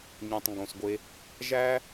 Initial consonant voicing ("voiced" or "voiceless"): voiced